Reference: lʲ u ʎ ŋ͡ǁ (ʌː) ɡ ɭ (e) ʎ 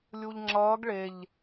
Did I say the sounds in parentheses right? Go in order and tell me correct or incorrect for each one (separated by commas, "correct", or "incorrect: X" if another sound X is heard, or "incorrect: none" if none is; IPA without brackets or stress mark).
correct, correct